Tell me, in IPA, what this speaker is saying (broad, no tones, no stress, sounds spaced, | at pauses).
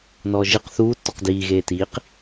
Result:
n ɔː ʒ ɨ q θ uː tː ɔ q d iː ɣ eː t iː q